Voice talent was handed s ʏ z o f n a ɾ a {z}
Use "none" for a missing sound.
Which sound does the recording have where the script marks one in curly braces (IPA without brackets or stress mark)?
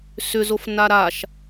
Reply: ʃ